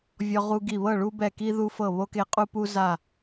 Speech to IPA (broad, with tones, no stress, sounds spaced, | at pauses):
vʲ ɔ˦ ʁ u˦ ɡ i˦˨ β ɤ˦˨ ɭ u˦ b ɛ˦˨ k i˦ ð u˦ f ɤ˦˨ β o˦ k e˦ qʼ u˦ p u˦ z a˦˨